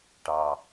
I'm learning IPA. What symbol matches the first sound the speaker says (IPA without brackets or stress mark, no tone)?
ʈ